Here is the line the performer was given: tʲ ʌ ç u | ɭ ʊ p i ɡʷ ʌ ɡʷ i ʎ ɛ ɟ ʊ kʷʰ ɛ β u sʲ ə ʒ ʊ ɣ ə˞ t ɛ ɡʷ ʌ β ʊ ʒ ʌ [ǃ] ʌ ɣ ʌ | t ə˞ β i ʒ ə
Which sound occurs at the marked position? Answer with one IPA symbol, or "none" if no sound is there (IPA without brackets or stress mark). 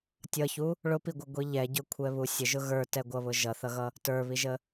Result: θ